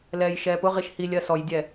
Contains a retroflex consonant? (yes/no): no